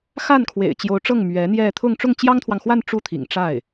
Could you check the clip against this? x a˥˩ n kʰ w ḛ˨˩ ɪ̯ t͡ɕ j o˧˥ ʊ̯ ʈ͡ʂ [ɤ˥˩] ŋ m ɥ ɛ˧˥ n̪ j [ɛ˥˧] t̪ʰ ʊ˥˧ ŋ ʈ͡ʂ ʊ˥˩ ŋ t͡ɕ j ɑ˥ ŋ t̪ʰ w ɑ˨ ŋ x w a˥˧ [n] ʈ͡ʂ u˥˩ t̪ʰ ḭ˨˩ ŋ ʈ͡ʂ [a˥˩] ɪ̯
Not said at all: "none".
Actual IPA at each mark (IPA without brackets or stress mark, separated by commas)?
ɤ˥˩, ɛ˥˧, n, a˥˩